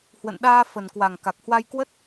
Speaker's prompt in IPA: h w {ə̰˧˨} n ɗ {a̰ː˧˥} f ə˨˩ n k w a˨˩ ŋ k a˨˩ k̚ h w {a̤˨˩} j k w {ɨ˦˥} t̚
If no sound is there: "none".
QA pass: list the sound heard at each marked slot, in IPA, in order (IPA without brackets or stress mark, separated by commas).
ə̰˧˨, aː˧, a˧, ə˦˥